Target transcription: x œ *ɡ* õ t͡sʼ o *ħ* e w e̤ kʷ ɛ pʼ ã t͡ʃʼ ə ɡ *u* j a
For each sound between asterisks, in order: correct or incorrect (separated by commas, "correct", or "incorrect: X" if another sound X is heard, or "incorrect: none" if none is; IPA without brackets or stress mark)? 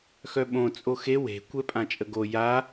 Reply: incorrect: ɓ, incorrect: x, incorrect: o